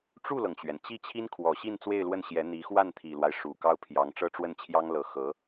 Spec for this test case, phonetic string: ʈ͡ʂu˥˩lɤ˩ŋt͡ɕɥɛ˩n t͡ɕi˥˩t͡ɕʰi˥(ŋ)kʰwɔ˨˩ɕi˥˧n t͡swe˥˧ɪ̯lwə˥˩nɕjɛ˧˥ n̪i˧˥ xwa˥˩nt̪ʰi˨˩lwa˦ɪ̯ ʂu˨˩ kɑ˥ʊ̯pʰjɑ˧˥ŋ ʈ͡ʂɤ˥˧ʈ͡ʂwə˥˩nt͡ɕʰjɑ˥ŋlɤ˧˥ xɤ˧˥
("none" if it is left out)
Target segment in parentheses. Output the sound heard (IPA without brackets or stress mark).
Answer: n